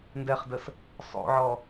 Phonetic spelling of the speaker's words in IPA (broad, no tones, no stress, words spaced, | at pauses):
ndɛχdəs | sˤo̰ʕɔ